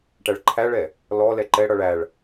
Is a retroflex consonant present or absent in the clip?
present